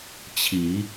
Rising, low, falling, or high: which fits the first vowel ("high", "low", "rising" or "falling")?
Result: rising